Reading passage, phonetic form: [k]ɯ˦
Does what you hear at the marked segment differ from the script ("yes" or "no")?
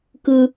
no